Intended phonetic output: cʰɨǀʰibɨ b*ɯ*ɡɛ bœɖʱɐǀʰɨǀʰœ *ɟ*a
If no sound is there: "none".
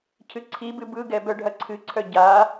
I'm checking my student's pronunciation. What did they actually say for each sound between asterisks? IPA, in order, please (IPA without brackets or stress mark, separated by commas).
ɯ, ɟ